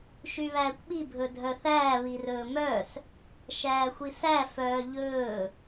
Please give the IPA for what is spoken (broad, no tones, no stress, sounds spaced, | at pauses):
ʃ y β æː kʷ ɓ i bʱ ɵ dʱ œ θ æː β i r ɵː m œ s | ʃ æː xʷ i s æ f œː ʎ ɵː